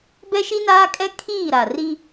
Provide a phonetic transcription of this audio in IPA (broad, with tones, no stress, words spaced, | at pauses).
bɛ˦ʃi˦naː˦kʼɛ˦ kʰiː˦˨ɾa˨ ri˦